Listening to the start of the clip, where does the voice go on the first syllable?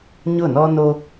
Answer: falling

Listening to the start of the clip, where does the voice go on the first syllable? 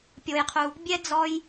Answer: high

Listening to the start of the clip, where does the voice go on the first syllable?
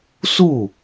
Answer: falling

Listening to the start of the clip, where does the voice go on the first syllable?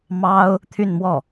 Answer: high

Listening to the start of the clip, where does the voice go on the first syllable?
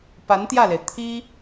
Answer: rising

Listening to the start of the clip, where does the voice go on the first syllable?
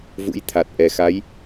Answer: rising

